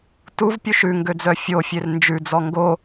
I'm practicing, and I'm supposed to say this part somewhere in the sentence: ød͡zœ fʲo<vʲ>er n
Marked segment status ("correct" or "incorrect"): incorrect